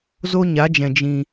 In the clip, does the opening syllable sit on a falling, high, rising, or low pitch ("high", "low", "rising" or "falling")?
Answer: high